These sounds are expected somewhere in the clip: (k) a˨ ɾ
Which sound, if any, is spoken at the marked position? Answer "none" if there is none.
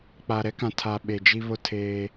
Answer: k͡p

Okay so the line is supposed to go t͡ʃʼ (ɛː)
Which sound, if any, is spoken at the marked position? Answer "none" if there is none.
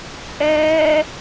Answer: ɛː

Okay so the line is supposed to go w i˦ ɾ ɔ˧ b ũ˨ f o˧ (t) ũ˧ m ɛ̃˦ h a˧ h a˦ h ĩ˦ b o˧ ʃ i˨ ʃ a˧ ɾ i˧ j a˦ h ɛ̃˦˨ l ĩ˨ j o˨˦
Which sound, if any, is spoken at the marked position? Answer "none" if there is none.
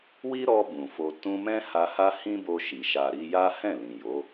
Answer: t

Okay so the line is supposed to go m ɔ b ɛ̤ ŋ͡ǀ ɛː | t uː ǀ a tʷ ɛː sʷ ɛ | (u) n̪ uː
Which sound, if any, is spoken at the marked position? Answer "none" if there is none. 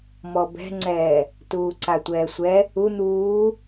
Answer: u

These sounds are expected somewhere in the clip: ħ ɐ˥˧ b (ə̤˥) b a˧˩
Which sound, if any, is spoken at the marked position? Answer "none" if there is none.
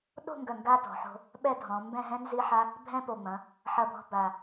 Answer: ɔ̤˥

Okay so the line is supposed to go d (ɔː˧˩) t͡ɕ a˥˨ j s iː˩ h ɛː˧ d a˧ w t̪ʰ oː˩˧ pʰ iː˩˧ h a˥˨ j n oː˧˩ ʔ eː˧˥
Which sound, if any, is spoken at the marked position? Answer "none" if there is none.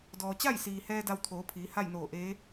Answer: ɔː˩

